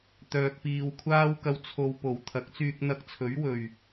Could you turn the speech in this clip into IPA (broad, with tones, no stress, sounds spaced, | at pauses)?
t̪ œː˨ k̚ p iː˨ w kʷʰ aː˥ w k ɐ˧ w t͡sʰ o˨ w p o˨˩ w t̪ʰ ɐ˨˥ k̚ t͡s yː˧ k̚ n̪ ɐ˧ k̚ t͡sʰ ɵ˨˥ ɥ w ɵ˨˩ ɥ